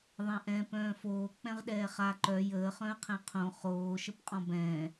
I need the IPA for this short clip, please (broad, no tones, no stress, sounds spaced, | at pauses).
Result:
ðˤ ɛ̃ ʔ ɛ̃ p œ̃ː f oː k͡p ɛ̃ ʁ ɗ ɛː χ a ǃ œ j əː χ œ̃ ə̯ qʰ ɛ̃ qʰ õ χ oː ʃ ə p qʼ ɔ̃ b ɛ̃ː